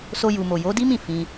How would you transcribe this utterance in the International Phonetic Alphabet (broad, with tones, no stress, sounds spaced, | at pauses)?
s o˧ j u˨ m o˨ j o˨˦ d i˦ m ĩ˦˨ f ĩ˧